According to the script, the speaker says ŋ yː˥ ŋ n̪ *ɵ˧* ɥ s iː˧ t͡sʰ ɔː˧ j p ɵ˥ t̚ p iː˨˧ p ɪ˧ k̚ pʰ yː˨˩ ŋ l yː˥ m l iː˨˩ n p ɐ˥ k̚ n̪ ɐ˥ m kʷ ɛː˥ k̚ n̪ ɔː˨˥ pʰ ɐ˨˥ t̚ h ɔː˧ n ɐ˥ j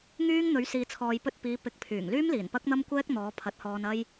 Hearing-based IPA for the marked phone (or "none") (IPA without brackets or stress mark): ɵ˨˥